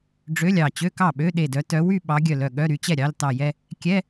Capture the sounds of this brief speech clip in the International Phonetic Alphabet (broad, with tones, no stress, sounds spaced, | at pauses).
ɖ͡ʐ ø˧˥˧ lʲ ɑ˧˩ t͡ɕ ø˧˥˧ k ɑ˥˩ ɓ ø˧˥˧ ɗ e˧˩ d œ˨˦ t œ˨˦ w y˥˧ ɓ ɑ˨˦ ɡʲ œ˧˩ l œ˧˩ ɠ œ˧˥˧ ɾ y˨˦ t͡ɕ ɛ˥˩ ɾʲ ɑ˧˥˧ l t ɑ˧˩ j ɛ˥˧ | kʲ ɛ˧˥˧